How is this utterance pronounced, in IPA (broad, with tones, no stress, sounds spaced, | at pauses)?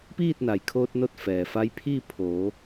p iː˥˨ t̚ n a˩ j kʰ oː˧ t̚ n o˥˨ t̚ f ɛː˩ f a˧˥ j pʰ iː˥˨ pʰ oː˩˧